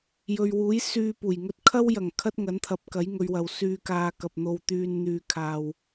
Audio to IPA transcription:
jɵ˨ɥwuː˨˥j syː˧ puː˨˩jŋɵ˥t̚ kʰɐ˥wjɐ˨˩ŋ kʰɐ˥t̚ŋɐ˨˥nt̪ʰɐ˨˥p̚ kɐ˨˥jŋɵ˨˧ɥwɐ˨w syː˧kaː˧kɐ˨p̚ n̪o˧wt̪yː˧n n̪yː˧kʰaː˧w

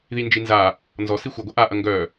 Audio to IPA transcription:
ðind͡ʒinza | nzɔ sixʷœɡʷɐ ʔaʔɐ ŋɡœ

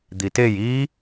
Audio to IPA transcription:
d̪itej i

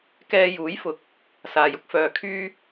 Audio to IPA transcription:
kɛː˧juː˨˥jfʊ˨k̚ | saː˨jʊ˥k̚fœː˨ kʰyː˥

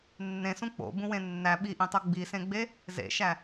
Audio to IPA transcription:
nːẽsũ k͡po̰bũwẽ nːæ ɓiʔĩtˤo ɡ͡bisẽɡ͡be | zḛʃæ

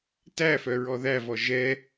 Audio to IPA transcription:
tæfœɹɔ ðævɔ ʒɛ

